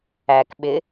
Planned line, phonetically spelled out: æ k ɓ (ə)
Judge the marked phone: incorrect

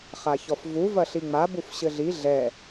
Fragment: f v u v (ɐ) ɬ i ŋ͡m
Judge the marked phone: correct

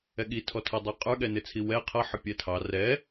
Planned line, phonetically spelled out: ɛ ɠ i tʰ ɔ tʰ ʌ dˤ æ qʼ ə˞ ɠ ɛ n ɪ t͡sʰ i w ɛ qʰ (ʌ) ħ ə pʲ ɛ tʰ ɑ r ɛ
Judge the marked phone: correct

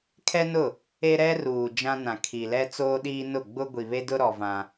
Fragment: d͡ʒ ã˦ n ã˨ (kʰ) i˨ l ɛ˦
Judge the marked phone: correct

